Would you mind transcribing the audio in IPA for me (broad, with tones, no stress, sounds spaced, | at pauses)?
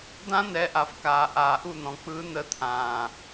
d̪ ã˦ n̪ ɛ˨˦ ʔ a˨ f k aː˨ ʔ aː˨ ʔ u˦˨ n̪ ɔ̃˨ k͡p ɯː˦ n̪ ə˦ t̪ʰ ãː˨